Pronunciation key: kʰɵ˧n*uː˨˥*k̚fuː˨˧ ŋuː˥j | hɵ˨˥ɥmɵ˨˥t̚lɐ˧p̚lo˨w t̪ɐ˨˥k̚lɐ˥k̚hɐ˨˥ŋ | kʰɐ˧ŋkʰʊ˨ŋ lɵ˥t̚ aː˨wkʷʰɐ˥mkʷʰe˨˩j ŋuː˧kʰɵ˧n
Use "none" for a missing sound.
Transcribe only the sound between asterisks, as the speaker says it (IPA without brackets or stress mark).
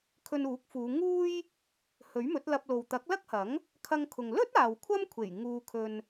uː˨˥